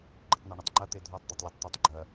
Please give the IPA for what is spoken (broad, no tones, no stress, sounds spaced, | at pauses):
ɡ͡ǃ ɨ tˤ n ɛ ɳ ɨ tˤ ŋ͡ǃ ɐ t̪ e dʱ ɔ tˤ d̪ e tˤ lʲ e tˤ t̪ u tˤ ɡ͡ǃ ɐ